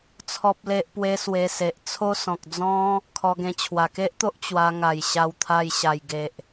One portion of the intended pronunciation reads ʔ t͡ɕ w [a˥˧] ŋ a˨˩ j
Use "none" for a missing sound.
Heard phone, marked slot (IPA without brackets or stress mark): a˧